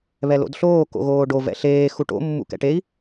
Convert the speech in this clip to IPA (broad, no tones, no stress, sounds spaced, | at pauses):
β ɛ l o̰ d ɬ oː k o̰ ɣ oː ɖ o v ɛ̰ ɬ eː x u ʈ o̰ mː ṵ k ɛ̰ ʈ e i̯